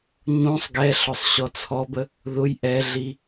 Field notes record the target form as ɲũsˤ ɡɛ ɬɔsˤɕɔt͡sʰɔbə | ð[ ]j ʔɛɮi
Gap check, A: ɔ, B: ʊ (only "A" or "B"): B